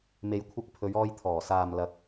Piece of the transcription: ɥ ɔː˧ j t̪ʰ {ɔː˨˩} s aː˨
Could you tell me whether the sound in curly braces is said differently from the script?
no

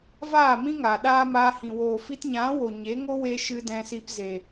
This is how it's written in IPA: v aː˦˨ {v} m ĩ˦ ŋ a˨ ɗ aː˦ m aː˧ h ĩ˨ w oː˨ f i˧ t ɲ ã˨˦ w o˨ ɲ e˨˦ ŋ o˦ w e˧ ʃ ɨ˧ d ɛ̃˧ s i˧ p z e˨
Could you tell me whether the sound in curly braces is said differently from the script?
yes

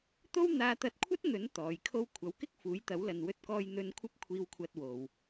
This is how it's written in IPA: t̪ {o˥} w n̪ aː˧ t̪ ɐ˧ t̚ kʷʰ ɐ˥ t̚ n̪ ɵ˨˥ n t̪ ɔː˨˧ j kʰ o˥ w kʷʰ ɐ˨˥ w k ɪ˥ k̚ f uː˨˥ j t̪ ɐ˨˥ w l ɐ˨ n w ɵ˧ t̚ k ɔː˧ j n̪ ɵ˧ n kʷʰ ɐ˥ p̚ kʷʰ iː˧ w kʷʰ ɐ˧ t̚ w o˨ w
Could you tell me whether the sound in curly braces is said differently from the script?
no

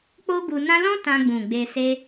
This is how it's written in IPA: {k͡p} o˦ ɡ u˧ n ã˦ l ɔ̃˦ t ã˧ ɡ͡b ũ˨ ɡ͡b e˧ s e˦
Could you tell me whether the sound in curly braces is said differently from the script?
no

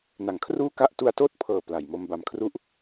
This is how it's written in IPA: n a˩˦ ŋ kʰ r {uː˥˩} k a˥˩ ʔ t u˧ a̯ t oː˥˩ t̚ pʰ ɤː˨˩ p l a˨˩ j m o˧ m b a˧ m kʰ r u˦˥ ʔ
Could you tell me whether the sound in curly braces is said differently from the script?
no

